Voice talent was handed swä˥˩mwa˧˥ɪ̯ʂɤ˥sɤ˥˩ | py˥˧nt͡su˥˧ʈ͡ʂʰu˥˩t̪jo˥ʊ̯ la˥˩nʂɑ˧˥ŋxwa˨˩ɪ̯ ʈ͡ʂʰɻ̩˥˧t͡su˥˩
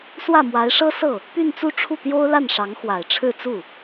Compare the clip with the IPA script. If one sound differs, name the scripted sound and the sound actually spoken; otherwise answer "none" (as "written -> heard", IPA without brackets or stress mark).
none